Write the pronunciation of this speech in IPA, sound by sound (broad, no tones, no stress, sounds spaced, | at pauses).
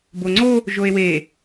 b o ŋ͡ǀ o | ʒ o e̯ w e